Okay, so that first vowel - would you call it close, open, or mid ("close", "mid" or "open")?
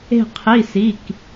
mid